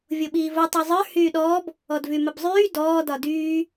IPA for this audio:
vʲ o ɓ iː v o tˤ y zˤ ə˞ h yː ɗ ɔː b | ɔ d v y m ə b zˤ yː d ɔː d ɒ d yː

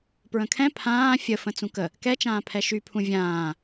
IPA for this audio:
p ɹ ə̃ kʰ ɛ̃ pʰ ãː fʲ ə f ə̃ t͡s ũ k ə | k ɛ t͡ʃ ãː pʰ ɛ ʃ y pʰ ũ vʲ ãː

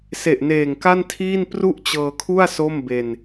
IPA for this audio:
s e˨˩ ʔ n eː˨˩ ŋ k a˥˩ n tʰ iː˥˩ n p r u˥˩ ʔ t͡ɕ ɤː˧ kʰ u˥˩ a̯ s o˥˩ m b e˧ n

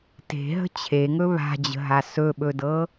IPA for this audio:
t e̤ ɦ ə̤ t͡ɕʰ e ŋ ɵ β a̤ d͡ʑ ə̤ ɦ a s ɵ ɓ ɵ d ɤ

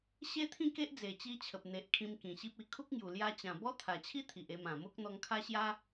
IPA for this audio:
ɕ e˦ t̪ʰ ĩ˥˧ k e˦ ʔ d͡z e˨˩ t͡ɕ i˧ t͡ɕʰ ə˨ p̚ n̪ e˨ ʔ kʰ ĩ˧ m k ĩ˨˩ ɕ i˦ p̚ i˨˩ kʰ u˦ k̚ ŋ j u˨˩ l j a˧ t͡ɕ ã˨˩ b ɔ˦ t̪ʰ a˨˩ t͡ɕʰ i˦ t̪ʰ i˨ ʔ e˧ m ã˨˩ m o˦ k̚ n̪ ɔ˧ ŋ kʰ a˦ ɕ j a˦

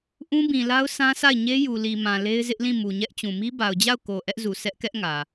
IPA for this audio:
ʔ ũ˦ b ĩ˨ l a˦ ʊ̯ s ã˦ s a˦˨ ɪ̯ ɲ e˦ j u˨ l i˨ m ã˨ l e˦ ɪ̯ z ɪ˦ ʔ l ĩ˦˨ m u˨ ɲ ɛ˦ ʔ t͡ɕ ũ˨ m i˦ b a˨ ʊ̯ d͡ʑ a˦˨ ʊ̯ k o˨ ʔ ɛ˦ ʔ z u˨ s ɛ˦ ʔ k ɛ˦ ʔ ŋ ä˨

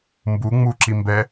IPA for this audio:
m b u ŋ͡m u ǁ i m b ɛ

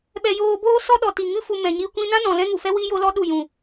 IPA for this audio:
ɓ ɛ˧ j oː˧ b oː˦ s ɔ˦ ɗ ɔ˨ t i˨ ŋ ɨ˦ f u˧ m ɛ̃˨ ɲ i˧ kʷ ĩ˧ n ã˦ n ɔ̃˨ l ɛ̃˦ ŋ u˨ f ɛ˦ w i˦ j o˦ l ɔ˦ ɗ u˦˨ j ũ˨

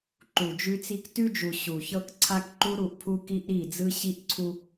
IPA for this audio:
ǃ u˨ d͡ʒ ʉ˦ t͡s i˦ k t ʉ˦ d͡ʒ u˨ ɕ u˨ ç ɤ˦ k ǀʰ a˦ k ǃ u˦ ɾ u˦˨ ʔ pʰ u˦ k i˦ ʔ ɾ i˦˨ d͡z ɯ˦ ɕ i˦ ʔ ǀʰ u˦

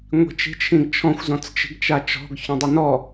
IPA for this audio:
ŋʷ i̤ t͡ʃ i̤ t͡ʃʰ ĩ ɡ t͡ʃʰ ɔ̃ xʷ z ɔ̃ t͡s t͡ʃ i̤ ɡ t͡ʃ a t͡ʃ ɔ̤ ɡ ç ɔ̃ dˤ i n ɔ

